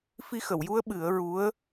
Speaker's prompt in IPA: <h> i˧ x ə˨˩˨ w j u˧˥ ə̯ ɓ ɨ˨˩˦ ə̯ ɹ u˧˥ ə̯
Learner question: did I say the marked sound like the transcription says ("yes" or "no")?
no